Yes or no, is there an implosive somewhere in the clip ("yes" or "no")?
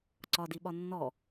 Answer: yes